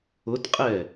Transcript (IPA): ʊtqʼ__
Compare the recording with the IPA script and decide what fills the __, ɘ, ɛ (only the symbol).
ɛ